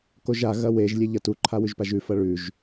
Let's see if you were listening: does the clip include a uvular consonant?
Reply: no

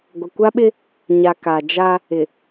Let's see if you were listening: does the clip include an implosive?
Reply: yes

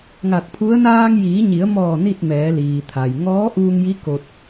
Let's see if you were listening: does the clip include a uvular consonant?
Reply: no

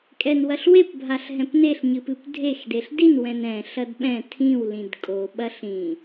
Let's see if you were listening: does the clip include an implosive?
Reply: yes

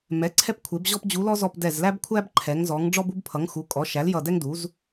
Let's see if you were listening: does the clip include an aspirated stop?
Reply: yes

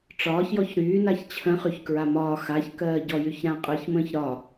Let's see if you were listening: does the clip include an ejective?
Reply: yes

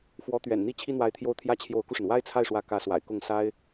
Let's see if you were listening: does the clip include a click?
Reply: no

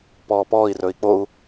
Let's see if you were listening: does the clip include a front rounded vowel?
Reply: no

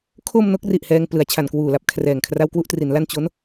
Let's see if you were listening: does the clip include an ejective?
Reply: no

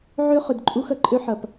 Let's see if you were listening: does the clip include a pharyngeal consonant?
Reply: yes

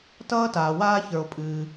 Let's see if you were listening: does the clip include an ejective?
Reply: yes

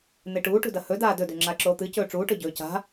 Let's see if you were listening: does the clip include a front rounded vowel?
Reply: no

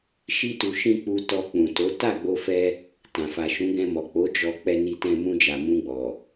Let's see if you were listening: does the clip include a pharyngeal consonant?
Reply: no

